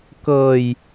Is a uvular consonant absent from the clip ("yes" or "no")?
yes